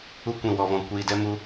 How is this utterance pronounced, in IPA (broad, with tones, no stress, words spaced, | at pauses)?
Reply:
u˧ kʷĩ˨wɔ˨vɔ̃˨ kʷiː˨dɛ˦mu˦